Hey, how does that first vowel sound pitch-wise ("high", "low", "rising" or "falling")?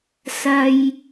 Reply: high